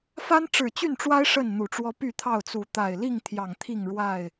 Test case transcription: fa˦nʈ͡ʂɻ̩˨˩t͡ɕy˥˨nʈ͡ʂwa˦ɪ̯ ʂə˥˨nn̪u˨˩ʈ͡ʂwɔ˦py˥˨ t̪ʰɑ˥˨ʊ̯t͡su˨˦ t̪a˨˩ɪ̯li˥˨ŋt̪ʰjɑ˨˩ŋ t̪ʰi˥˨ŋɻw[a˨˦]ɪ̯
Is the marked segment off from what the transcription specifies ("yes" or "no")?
yes